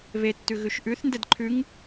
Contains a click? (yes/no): yes